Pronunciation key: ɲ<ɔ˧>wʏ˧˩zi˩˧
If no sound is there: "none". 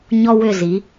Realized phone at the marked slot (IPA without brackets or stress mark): ɔ˧